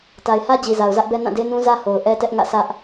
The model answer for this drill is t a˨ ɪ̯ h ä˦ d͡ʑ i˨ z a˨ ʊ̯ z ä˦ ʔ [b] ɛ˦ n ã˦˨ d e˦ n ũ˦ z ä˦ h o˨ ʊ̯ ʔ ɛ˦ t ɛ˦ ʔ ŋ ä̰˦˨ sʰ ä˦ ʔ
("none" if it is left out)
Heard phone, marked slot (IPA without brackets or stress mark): b